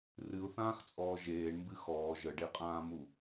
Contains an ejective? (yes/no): yes